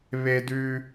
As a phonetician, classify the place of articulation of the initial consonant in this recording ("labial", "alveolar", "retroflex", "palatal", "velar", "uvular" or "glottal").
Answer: labial